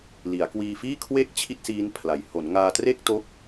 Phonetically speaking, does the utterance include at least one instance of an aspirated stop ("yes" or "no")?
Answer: yes